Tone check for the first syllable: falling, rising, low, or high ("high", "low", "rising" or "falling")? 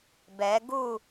rising